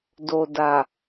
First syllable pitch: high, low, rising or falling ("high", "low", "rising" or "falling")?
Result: low